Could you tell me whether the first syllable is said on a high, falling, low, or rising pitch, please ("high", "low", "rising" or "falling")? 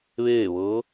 falling